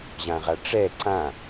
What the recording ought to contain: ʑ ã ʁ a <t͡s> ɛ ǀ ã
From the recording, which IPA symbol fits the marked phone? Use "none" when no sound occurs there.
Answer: ʈ͡ʂ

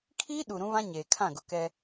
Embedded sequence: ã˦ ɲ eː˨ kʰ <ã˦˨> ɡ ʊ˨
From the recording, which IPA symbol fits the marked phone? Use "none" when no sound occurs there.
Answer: ã˦˨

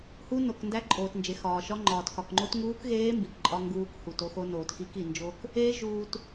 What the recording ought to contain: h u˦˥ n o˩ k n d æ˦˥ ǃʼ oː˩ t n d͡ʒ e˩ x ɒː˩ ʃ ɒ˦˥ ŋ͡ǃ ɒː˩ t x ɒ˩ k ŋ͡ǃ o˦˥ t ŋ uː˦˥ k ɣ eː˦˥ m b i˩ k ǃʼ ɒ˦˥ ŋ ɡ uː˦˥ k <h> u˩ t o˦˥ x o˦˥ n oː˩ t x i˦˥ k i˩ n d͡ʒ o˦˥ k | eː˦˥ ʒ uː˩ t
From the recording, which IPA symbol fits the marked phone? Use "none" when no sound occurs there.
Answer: h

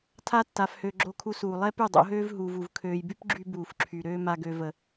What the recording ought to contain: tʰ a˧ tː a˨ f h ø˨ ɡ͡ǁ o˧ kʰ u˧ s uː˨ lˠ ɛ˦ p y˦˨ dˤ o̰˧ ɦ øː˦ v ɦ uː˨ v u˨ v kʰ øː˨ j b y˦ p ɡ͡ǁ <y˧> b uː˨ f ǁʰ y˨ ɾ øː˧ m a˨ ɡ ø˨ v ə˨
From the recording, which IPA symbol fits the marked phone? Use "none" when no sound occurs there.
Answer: y˧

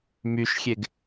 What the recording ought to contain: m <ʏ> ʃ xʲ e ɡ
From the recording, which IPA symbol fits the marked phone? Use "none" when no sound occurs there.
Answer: y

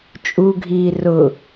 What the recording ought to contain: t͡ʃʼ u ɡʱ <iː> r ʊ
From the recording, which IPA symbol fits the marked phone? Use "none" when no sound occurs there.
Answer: iː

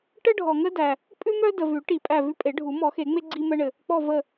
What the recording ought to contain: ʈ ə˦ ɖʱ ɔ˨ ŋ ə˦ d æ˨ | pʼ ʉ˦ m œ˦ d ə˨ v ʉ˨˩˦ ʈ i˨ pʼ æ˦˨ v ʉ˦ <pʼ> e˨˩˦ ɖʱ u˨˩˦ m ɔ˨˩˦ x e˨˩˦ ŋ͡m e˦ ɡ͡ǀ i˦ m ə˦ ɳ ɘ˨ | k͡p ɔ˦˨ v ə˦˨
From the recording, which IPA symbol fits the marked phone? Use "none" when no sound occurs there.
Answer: pʼ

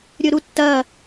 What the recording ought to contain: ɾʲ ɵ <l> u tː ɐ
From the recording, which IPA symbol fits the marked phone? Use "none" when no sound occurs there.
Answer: ɾ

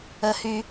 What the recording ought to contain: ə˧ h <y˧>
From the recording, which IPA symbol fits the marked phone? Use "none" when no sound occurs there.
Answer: y˧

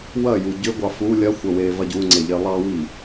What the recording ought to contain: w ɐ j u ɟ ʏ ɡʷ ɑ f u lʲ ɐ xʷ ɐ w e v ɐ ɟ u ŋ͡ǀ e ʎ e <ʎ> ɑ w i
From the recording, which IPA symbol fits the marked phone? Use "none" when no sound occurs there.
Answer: lˠ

